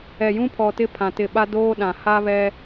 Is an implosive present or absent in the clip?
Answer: present